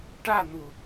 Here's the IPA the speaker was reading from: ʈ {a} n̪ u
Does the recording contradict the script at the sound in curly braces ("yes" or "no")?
no